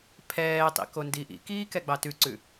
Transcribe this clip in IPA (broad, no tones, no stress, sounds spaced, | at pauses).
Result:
pʰ ɛː tˤ ḭ k o n d i ʔ ḭ k iː k ɛ ɡ͡b ɑ t ʉ ǀ ʉ